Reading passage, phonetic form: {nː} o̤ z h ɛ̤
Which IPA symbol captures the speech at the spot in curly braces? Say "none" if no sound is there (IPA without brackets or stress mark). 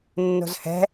nː